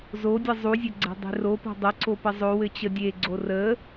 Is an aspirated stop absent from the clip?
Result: yes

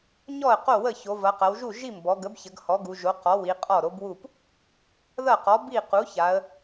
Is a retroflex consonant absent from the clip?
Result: yes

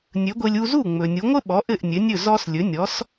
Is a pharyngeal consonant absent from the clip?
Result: yes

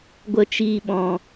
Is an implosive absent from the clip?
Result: no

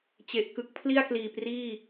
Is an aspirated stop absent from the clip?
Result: no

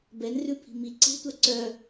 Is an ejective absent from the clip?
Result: yes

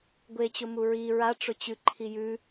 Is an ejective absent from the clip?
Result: yes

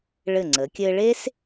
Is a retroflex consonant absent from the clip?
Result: no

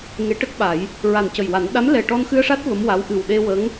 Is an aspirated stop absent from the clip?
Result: yes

